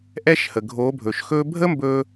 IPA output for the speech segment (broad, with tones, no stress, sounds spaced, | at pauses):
ʔ ɛ˦ ʃ h ə˨ ɡʱ o˨˦ bʱ ɵː˨ ʃ x ɵː˦ bʱ ə˦ m b ɵː˧